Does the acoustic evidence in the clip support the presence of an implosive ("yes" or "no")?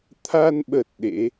yes